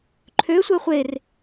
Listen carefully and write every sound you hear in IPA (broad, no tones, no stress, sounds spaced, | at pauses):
ǃʰ ø sʷ ɜ χʷ e r